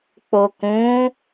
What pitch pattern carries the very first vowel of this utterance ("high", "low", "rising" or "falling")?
low